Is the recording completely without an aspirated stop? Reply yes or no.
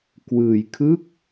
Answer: no